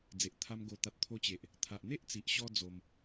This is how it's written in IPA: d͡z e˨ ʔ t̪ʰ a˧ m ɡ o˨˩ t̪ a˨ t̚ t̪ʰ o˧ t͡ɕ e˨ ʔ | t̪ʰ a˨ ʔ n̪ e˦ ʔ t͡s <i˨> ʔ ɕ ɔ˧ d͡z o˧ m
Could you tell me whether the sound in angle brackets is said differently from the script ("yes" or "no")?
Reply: no